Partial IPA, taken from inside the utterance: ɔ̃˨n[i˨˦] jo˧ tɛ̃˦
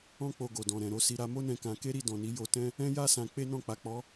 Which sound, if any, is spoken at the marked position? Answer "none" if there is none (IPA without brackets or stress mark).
i˨˦